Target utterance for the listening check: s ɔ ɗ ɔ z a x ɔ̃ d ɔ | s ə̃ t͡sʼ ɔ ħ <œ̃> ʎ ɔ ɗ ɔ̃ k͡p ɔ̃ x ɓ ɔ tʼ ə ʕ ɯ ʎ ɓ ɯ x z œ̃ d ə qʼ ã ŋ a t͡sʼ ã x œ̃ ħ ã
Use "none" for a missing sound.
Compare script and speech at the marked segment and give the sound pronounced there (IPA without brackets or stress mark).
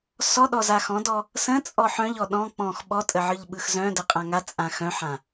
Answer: œ̃